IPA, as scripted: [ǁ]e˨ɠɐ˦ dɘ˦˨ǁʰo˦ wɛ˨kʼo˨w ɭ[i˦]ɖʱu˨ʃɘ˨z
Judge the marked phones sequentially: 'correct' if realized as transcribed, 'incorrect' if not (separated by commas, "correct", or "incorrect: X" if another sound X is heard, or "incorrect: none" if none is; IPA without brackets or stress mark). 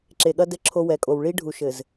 correct, correct